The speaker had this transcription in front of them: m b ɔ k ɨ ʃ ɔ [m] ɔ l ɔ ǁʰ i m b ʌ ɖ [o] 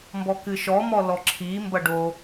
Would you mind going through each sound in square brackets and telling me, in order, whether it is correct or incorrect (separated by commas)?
correct, correct